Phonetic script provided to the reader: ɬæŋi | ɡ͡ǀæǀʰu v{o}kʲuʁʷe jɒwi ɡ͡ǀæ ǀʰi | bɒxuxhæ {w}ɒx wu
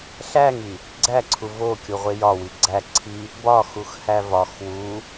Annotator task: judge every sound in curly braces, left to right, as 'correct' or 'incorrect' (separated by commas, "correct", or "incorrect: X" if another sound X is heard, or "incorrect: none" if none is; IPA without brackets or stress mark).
correct, incorrect: v